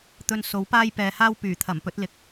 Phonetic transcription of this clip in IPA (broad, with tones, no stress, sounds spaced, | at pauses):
t̪ ɵ˨ n s o˨˥ w p aː˥ j p ɛː˨ h aː˥ w p yː˨˩ t̪ʰ ɐ˨˩ m p ɵ˨˥ t̚ l ɪ˨ k̚